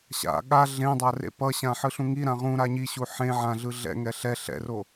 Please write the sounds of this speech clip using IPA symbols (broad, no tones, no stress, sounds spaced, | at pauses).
ɕ a̰ ɠ a ɮ ẽ dˤ a r ḛ p ʌ ɕ ã ħ ɯ ɬ ũ ŋ i ɾ ã ʁ ũ ɾ a ɲ i ɕ u ħ ẽ ʕ ã ɮ ɯ ɮ ɛ̰ ŋ ɛ ɬ ɛ ɬ ɛ̰ r o